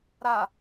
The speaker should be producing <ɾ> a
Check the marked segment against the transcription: correct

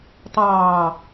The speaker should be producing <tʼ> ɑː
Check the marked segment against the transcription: incorrect: tˤ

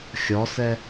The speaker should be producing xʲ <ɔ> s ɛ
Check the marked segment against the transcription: correct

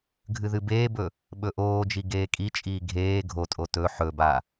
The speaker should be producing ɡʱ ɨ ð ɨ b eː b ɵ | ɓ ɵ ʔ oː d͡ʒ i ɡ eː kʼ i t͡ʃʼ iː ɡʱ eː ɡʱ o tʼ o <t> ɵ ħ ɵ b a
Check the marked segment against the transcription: correct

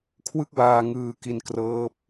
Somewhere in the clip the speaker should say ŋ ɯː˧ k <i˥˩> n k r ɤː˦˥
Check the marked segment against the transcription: incorrect: i˧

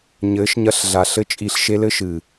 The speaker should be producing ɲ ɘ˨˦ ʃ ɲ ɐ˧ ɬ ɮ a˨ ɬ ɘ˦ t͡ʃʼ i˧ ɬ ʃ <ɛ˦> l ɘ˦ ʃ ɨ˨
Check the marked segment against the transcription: incorrect: e˦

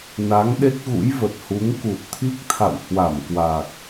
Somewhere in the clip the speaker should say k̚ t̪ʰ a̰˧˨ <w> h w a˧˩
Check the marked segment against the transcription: correct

